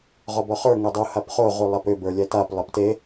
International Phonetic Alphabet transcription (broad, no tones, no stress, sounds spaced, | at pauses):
ʁ ɔ b ɔ χ ə˞ ŋ ɛ dˤ u h a p χ o ʁ u lˠ a p ʏ b ə˞ lʲ ɛ t a p lˠ ʌ p t e